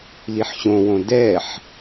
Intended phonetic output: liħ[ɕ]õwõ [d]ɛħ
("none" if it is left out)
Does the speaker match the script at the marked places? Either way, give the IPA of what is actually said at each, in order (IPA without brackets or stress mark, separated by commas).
ɕ, d